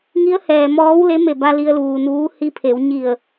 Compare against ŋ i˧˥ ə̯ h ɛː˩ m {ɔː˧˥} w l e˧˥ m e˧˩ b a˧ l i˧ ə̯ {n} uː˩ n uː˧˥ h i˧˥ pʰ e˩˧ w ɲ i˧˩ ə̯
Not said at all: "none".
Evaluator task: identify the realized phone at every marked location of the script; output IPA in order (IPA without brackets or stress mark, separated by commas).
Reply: ɔː˧˥, l